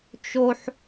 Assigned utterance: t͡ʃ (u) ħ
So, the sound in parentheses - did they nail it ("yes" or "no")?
no